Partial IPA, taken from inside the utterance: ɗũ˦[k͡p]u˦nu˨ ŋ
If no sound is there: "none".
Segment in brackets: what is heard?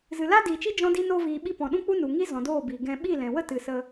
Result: k͡p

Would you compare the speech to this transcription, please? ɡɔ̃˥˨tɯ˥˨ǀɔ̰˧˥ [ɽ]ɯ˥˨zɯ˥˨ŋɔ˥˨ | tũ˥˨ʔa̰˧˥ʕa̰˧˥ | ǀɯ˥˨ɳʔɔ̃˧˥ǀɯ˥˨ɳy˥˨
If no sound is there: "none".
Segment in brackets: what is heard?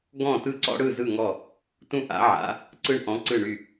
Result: ɽ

